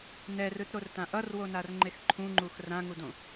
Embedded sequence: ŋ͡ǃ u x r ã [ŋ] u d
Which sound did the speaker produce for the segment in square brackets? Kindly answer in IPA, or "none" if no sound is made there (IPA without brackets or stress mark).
ŋ